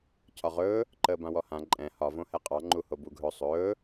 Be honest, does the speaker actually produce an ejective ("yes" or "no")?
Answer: yes